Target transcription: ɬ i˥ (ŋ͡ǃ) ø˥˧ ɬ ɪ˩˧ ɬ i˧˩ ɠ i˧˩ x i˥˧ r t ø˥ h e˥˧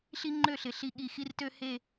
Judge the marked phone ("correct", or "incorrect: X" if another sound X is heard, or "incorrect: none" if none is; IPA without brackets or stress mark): correct